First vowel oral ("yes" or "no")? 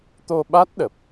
yes